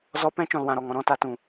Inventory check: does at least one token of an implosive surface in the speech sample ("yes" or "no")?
no